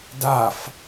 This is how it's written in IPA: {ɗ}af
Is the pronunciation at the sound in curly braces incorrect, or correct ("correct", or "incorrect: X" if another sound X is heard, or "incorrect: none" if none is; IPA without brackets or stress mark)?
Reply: incorrect: d